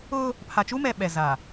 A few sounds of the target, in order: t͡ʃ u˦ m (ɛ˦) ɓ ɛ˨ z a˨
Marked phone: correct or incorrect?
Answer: incorrect